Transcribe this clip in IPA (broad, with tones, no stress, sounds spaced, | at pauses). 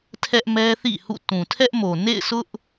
tʰ ɛ˦ ʔ m ɛ˦ θ ḭ˦˨ h ṵ˦˨ t ũ˨ tʰ ɛ˦ ʔ m o˨ n ḛ˦˨ ɪ̯ sʰ ʊ˦ ʔ